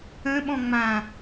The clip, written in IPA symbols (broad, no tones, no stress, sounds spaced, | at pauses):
ə̃ ɓ ɔ̃ ŋ͡m ã